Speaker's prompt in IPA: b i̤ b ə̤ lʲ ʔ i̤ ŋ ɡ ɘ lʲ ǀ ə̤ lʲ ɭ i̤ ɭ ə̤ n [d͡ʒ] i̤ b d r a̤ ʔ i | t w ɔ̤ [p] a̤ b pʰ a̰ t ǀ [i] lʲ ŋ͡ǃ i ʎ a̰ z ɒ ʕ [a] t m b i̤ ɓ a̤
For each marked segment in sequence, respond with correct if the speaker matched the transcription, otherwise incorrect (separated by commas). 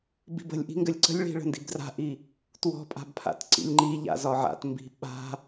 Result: incorrect, incorrect, incorrect, incorrect